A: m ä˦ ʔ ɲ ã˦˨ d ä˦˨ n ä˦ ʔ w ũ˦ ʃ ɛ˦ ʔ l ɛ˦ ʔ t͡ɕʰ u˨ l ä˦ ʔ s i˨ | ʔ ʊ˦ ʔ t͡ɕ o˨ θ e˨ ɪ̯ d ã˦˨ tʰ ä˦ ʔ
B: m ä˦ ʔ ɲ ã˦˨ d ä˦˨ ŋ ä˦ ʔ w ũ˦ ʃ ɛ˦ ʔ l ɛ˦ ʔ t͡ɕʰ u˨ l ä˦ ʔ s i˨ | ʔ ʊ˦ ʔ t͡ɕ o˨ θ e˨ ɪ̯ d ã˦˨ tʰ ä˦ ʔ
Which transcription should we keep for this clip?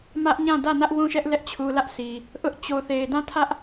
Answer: A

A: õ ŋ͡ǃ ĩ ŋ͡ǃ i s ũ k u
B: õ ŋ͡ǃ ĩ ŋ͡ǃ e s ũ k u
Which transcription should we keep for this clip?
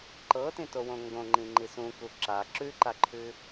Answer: A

